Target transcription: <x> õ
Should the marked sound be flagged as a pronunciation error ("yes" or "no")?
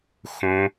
no